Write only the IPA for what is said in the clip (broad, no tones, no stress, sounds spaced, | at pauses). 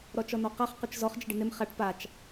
ɾ ɔ t͡ʃ ɔ n ɔ q a χ q ʊ t͡ʃ z ɔ χ d͡ʒ ɪ ɖ ɪ n ɪ m χ a ʈ p a t͡ʃ